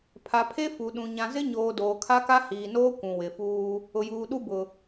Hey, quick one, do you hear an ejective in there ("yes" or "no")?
no